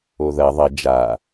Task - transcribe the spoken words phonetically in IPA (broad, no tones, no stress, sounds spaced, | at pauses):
o ð ɐ ðˤ ɐ d͡ʒ a